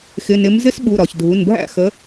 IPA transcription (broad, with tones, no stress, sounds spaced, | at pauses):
x ɪ˩˧˩ n ɪ˨˦ m z ɪ˦˥ s ɓ u˩˧˩ ɾ ɒ˩ ç dʱ u˩˧˩ n bʱ æ̰˥˩ x ə˨˦